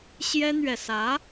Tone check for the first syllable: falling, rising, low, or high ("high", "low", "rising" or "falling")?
high